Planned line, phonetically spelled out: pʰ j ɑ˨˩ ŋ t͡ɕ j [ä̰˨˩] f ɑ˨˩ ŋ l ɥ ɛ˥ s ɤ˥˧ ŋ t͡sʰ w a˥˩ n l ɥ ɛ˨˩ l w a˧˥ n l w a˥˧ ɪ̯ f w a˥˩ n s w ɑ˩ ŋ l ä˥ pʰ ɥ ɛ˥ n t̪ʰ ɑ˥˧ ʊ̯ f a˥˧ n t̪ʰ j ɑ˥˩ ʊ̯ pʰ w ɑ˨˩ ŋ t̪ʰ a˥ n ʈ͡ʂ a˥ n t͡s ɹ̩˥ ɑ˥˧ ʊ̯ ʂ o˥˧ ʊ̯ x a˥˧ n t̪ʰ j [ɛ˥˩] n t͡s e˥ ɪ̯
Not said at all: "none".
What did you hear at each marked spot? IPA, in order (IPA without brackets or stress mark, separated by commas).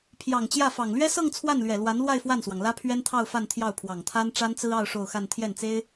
ä˥˩, ɛ˥˩